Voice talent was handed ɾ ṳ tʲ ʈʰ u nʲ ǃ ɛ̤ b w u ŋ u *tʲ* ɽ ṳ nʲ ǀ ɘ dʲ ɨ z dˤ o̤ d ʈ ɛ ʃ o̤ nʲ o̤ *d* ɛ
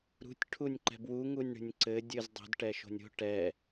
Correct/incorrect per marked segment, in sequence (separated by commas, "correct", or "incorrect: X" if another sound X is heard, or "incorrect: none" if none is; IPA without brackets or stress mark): incorrect: nʲ, incorrect: ʈ